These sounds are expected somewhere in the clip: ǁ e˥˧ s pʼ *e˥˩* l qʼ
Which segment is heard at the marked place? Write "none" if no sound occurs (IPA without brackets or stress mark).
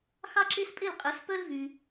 e˥˩